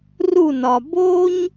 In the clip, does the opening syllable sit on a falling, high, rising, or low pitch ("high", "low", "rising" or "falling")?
falling